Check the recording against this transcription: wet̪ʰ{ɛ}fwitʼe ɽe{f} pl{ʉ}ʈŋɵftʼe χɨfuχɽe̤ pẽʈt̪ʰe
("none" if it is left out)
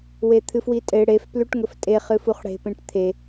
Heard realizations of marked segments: ɨ, f, ʉ

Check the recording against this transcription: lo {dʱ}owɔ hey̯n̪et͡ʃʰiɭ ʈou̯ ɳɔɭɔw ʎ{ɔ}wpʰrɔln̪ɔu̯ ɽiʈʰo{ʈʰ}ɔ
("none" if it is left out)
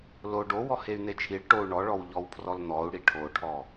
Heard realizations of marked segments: ɖ, ɔ, ʈʰ

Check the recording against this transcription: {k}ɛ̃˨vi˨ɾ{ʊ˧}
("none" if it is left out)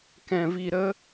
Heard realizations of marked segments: k, ə˧

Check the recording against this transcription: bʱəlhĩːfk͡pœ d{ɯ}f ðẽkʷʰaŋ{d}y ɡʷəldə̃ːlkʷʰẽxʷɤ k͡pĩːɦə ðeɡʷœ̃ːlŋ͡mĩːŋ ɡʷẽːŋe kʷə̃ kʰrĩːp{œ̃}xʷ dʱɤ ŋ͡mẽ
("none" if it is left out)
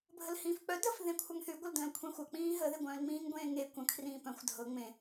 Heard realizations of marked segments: ə, θ, œ̃

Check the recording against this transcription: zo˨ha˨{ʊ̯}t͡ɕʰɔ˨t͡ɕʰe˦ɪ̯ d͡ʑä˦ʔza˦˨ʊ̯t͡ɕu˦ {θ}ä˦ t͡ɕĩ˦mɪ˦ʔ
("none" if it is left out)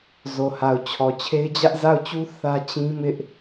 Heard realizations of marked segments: ʊ̯, θ

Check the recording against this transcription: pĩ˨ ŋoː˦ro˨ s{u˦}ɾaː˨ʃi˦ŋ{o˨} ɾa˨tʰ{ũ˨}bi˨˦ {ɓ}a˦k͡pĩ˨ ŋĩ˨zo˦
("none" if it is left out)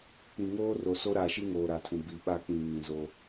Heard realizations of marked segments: o˦, oː˨, ũ˨, ɓ

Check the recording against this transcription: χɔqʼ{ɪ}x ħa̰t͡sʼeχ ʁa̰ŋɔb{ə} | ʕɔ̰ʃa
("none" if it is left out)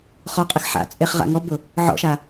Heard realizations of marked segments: i, ʊ

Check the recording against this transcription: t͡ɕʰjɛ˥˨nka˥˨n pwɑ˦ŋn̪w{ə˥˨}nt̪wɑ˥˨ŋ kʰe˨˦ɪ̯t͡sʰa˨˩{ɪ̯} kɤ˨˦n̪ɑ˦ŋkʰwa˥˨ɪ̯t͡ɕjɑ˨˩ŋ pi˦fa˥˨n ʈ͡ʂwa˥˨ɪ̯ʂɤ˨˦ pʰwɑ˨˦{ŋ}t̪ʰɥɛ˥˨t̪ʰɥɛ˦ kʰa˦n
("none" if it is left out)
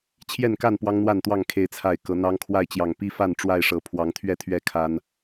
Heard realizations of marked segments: a˥˨, ɪ̯, ŋ

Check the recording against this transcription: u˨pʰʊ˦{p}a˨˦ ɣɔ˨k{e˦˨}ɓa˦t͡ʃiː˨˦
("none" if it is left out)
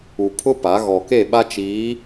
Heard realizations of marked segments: p, e˦˨

